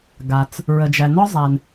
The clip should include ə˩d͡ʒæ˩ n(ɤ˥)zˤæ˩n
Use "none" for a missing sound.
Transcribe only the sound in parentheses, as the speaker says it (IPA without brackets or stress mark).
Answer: ɔ˥